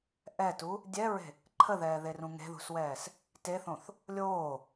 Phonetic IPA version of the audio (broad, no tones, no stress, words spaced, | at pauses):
ʔɛtu | dʲɛɹe̤ | ǃʰəðɛːðerũ ŋe̤ðṳswɛːs | teθõθ | lʲoː